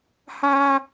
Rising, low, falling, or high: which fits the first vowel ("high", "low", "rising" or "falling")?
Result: high